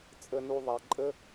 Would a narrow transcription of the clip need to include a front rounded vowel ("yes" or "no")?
no